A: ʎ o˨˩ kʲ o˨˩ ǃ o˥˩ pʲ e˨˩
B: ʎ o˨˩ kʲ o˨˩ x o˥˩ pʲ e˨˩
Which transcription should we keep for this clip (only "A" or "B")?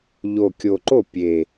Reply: A